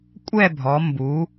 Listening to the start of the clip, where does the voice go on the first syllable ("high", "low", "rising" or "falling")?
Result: falling